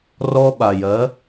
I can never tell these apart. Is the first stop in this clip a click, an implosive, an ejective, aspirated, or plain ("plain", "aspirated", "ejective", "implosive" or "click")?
implosive